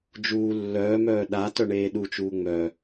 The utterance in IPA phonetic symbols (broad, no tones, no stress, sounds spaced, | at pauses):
d͡ʒ uː lː œː m œː ɗ a t œ ɳ eː ɗ u t͡ʃ uː ŋ͡m œ